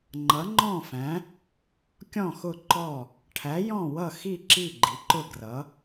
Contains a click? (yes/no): yes